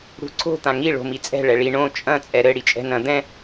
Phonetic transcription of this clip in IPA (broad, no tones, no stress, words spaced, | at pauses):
ɽṳǀʰo̤ t̪ãŋi ɭo̤mit͡sʼɛ̤ ɭɛɭi ɳõ t͡ʃʼɐ̃ t͡sʼɛɾɘ ɽit͡ʃʼɛ̤nɐ̃ d̪ɛ̃